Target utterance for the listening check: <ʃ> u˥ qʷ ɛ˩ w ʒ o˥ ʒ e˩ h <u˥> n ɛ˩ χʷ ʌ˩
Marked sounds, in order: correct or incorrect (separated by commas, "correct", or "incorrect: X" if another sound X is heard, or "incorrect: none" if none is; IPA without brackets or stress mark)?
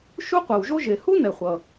correct, correct